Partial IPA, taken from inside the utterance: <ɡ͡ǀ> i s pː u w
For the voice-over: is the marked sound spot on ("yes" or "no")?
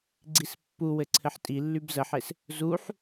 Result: yes